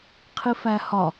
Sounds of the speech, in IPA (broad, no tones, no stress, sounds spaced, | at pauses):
qʰ i f æ h ɒ